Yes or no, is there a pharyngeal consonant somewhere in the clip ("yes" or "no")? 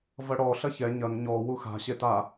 no